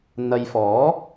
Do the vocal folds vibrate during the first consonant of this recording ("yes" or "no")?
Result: yes